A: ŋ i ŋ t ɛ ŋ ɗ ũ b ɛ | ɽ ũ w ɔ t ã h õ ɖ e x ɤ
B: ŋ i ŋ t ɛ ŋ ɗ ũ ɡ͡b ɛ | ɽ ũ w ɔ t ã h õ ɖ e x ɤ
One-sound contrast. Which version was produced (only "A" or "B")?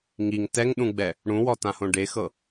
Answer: B